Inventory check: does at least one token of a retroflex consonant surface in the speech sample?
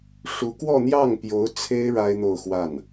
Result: yes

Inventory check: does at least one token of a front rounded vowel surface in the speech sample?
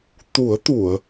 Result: no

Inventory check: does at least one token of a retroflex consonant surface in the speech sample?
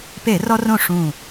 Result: yes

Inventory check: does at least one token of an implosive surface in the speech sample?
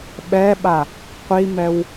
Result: yes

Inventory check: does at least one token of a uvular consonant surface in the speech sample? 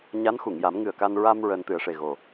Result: no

